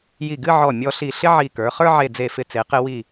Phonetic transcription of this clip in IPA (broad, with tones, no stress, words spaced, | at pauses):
ji˧˩ɡɨ˥˧ʕɔ˧˩ mʲɔ˧ɬi˧˩ ɬɪ˥ʕi˧˩kə˞˩˧ χə˞˥ʕe˧˩ d͡ze˧˩fɪ˧˩t͡se˩˧ qɪ˧ wi˧˩